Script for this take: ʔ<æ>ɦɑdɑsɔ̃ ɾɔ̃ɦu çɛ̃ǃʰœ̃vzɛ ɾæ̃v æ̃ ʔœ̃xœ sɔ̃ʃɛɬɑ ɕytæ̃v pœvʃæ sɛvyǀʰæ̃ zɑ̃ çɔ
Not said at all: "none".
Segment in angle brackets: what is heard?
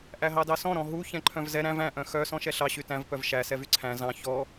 æ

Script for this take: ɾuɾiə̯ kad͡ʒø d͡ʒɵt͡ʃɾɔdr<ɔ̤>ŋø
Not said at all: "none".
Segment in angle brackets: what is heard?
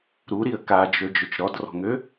ɔ̤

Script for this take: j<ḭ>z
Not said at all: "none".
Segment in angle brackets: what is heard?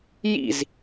ḭ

